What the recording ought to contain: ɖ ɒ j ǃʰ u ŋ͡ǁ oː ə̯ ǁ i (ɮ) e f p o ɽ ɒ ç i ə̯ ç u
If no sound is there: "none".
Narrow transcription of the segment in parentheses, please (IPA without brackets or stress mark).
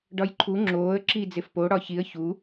d͡z